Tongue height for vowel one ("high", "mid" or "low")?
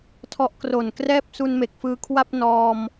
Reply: mid